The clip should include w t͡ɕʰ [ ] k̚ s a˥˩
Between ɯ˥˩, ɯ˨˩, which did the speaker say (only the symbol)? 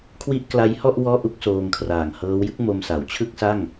ɯ˥˩